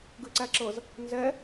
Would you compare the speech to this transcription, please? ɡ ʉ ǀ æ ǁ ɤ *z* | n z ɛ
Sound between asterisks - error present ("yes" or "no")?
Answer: no